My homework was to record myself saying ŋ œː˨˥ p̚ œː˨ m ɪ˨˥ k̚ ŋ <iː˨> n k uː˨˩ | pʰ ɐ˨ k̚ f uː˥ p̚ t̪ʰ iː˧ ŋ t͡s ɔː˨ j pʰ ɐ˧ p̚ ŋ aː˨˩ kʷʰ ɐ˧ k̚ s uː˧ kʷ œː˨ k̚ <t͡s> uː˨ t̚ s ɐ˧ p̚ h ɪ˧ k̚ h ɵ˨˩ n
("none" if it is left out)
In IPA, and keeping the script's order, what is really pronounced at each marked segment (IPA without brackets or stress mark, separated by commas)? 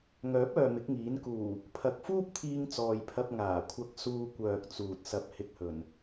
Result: iː˨˥, t͡s